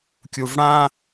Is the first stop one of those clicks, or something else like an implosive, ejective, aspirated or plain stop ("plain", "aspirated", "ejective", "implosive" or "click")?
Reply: plain